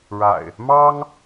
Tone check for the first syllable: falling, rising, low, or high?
low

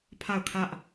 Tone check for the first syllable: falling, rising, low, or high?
falling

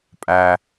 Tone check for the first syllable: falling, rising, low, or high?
low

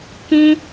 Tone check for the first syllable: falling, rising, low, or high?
high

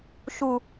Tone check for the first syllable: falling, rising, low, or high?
high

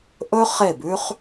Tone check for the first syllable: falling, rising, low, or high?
high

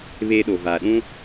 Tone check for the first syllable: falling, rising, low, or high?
high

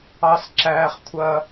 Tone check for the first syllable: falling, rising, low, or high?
low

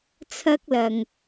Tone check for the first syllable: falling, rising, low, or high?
high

